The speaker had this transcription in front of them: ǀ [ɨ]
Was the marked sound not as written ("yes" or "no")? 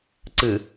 no